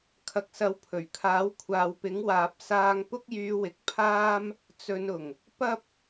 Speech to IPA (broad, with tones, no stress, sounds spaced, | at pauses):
kʰ ɐ˨ k̚ s ɐ˨˥ w pʰ ɵ˨˩ ɥ kʰ aː˨˥ w kʷʰ aː˨ w p ɪ˨˥ ŋ w aː˨ p̚ s aː˧ ŋ p ʊ˥ k̚ j yː˧ w ɪ˨ k̚ pʰ aː˥ m | t͡s ɵ˨˧ n ʊ˨˩ ŋ | p ɐ˥ p̚